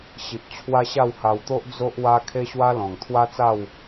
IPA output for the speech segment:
ɕ i˨ p̚ t͡ɕʰ w a˦ ɕ a˥˧ w h a˧ w t̪ o˦ ʔ d͡z o˦ ʔ w a˦ kʰ e˦ ɕ w a˦ l ɔ̃˨˩ ŋ t̪ʰ w a˦ t͡s a˥˧ w

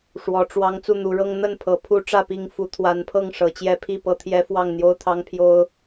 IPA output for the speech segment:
ʂ w ɔ˨˦ ʈ͡ʂ w ɑ˦ ŋ t͡s u˥˨ n̪ u˨˦ ɻ ɤ˦ ŋ n̪ ə˥˨ n pʰ ɤ˨˦ pʰ u˦ ʈ͡ʂ ä˥˨ p i˥˨ ŋ f u˨˦ t̪ʰ w a˨˦ n pʰ ɤ˥˨ ŋ ʂ ɤ˨˦ t͡ɕ j ɛ˦ pʰ i˥˨ p ɤ˦ t̪ʰ j ɛ˦ f w ɑ˥˨ ŋ n̪ j o˦ ʊ̯ t̪ʰ ɑ˦ ŋ pʰ j o˦ ʊ̯

